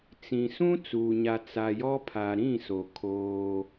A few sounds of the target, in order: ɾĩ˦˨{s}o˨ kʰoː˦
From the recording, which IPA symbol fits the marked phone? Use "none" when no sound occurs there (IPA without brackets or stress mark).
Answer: s